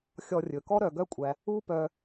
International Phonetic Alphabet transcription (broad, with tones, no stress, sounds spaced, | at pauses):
xʲ ɔ˧ rʲ ɵ˨ k ɔ˦ ɾ œ˨ ɡ œ˦ kʷʼ æ˧ | u˦ p œ˧